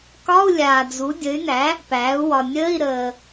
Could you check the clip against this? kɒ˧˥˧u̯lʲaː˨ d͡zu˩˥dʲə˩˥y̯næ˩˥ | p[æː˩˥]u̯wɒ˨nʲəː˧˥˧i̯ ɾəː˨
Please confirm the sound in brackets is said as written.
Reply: yes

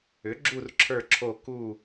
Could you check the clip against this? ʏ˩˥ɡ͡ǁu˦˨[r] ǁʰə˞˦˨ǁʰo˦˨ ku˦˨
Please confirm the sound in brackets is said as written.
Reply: yes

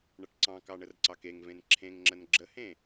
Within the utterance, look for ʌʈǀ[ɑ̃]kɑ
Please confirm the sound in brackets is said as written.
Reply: yes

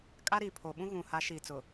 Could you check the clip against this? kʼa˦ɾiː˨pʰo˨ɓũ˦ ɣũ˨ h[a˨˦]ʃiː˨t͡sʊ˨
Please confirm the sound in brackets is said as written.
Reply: yes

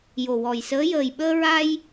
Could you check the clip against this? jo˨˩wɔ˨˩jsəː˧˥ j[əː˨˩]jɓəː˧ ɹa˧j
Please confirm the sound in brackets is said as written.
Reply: yes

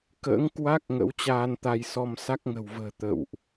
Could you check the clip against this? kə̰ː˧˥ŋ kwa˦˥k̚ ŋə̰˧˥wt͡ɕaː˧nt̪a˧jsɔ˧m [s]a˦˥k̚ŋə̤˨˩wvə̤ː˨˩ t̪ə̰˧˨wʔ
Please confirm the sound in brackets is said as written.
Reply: yes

